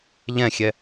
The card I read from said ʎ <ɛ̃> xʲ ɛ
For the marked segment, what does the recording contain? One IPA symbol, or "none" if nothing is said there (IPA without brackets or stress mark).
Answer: ɛ̃